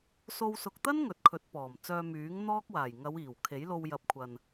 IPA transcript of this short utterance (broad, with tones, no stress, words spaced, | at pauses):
so˧w sʊ˨k̚t̪ɐ˥n ŋɵ˨t̚kʰɵ˨˥t̚pɔː˨˩m t͡sœː˧myː˨˥ŋ n̪ɔː˥k̚waː˨˩j ŋɐ˨˧wiː˨˩w kʰe˨˥jlo˧w jɐ˨p̚kʷʰɐ˨n